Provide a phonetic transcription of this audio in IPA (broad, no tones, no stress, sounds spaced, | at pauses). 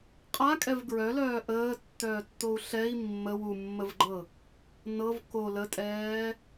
qʼ a kʼ ɛ v ɡ ɹ œ l œː ʔ əː tː œː tː o u̯ ɬ ɛ i̯ mː ə w u mː ə v ɡ͡ǃ ɤ | n ɤ v k o l ə tʼ ɛː